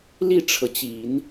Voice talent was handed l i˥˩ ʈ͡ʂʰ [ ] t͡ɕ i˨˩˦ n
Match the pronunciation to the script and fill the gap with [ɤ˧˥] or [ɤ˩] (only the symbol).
ɤ˩